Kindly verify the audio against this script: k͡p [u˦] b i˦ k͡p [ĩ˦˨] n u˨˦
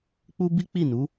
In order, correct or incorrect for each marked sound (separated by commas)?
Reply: correct, incorrect